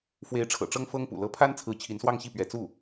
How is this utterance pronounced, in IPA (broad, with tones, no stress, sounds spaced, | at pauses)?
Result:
f w e˧˥ ɪ̯ ʈ͡ʂʰ ɤ̰˨˩ ʈ͡ʂ ɤ˥ ŋ f ɤ˥ ŋ p ṵ˨˩ l ɤ˧˥ pʰ a˥ n t͡sʰ ɹ̩˧˥ t͡ɕʰ i˧˥ n s w ɑ˥˧ ŋ ɕ i˥˩ p ɥ ɛ˧˥ t͡s u˥˩